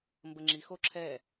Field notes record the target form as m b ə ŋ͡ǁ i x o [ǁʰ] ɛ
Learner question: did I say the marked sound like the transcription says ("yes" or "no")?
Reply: yes